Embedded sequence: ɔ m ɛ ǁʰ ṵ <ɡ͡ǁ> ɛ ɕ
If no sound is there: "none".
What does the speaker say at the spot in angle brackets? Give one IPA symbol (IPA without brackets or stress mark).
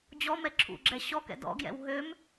ɡ͡ǁ